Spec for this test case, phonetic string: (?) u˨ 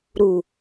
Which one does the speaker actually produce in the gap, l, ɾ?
ɾ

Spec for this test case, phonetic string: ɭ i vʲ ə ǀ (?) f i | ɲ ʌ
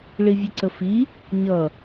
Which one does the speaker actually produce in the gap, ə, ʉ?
ə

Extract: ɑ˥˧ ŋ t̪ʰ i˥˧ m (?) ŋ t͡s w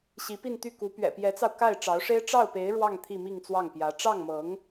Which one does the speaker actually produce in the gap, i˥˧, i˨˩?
i˥˧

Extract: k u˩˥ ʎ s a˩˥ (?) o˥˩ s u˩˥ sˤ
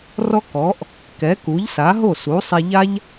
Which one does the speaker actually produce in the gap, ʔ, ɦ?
ɦ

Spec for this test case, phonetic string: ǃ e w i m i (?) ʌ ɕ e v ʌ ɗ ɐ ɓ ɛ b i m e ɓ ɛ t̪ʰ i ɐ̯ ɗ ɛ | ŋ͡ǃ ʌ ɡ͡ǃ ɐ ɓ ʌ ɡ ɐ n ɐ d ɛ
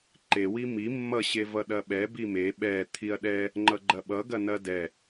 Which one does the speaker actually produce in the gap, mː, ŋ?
mː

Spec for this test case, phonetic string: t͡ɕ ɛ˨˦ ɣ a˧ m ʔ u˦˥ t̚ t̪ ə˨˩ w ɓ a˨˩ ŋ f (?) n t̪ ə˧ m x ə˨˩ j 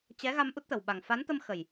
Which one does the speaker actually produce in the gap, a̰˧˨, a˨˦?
a˨˦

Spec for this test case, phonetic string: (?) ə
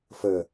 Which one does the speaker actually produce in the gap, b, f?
f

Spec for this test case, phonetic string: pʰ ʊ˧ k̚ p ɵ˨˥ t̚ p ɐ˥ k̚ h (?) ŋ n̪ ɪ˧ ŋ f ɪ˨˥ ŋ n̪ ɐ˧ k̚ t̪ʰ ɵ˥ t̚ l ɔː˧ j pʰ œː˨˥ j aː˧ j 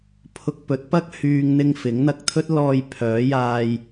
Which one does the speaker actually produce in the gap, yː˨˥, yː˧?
yː˧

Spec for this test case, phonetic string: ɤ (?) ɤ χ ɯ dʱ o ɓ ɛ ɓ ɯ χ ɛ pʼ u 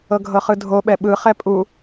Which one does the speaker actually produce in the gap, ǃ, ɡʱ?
ɡʱ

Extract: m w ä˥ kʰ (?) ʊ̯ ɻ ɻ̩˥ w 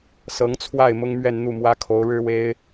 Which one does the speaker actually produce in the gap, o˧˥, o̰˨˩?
o˧˥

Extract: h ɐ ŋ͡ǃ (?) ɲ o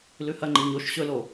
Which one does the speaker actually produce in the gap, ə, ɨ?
ɨ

